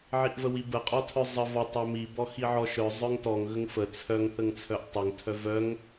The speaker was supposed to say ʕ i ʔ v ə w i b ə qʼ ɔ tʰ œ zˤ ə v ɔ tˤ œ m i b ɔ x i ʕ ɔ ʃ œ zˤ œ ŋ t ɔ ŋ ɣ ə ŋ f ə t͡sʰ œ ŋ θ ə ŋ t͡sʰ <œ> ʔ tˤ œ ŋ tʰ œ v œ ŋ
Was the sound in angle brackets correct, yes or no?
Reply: yes